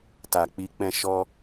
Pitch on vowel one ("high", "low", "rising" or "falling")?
low